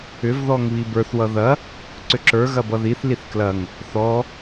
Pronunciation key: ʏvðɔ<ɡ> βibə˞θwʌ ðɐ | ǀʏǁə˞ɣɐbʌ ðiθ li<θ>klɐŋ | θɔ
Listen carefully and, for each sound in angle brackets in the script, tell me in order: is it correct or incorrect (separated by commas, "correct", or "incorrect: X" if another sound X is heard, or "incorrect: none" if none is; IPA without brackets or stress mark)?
incorrect: ŋ, correct